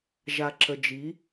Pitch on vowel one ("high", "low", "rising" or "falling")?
low